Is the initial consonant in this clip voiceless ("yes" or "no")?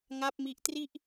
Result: no